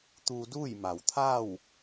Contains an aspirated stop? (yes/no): yes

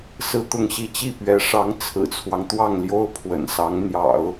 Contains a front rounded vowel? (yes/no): no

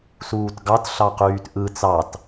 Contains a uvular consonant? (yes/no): yes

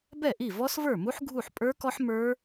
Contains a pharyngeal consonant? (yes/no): yes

